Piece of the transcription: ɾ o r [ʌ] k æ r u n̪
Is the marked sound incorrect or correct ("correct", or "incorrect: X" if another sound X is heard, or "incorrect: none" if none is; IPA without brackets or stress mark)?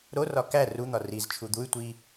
incorrect: ɒ